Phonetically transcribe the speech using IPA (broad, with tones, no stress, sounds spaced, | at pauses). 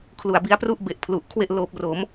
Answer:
kʰ l u˨˩ a̯ b i˦˥ a̯ p r u˥˩ ʔ b e˨˩ ʔ pʰ l u˨˩ ʔ kʰ w e˥˩ ʔ l oː˦˥ p̚ r o˩˦ m